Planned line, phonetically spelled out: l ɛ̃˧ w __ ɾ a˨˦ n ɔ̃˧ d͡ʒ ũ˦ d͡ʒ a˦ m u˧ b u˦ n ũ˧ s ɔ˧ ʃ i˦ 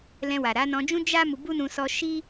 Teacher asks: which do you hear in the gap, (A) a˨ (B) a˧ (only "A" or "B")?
A